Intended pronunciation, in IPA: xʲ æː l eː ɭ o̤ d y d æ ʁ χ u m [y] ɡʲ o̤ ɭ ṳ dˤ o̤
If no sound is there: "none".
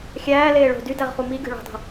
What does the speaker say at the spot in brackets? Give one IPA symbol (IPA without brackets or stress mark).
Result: i